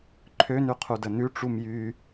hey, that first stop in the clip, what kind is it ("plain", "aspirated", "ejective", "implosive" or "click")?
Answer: click